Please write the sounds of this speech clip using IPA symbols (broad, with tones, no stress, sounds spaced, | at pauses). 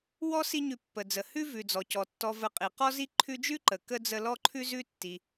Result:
w ɔ˦ s i˦ ɲ ʉ˨ pː ə˩ d͡z ə˩ h ʉ˥ v ʉ˩ d͡z ɔ˩ c ɔ˩ tː ɔ˨ v ə˨ qʼ i˩ q ɔ˦ z i˦ ǃʰ ʉ˦ d͡ʒ ʉ˥ ǃ ə˩ k ə˥ d͡z ə˦ l ɔ˥ ǃʰ ʉ˥ z ʉ˥ tː i˨